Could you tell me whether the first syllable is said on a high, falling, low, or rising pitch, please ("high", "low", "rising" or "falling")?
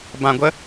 low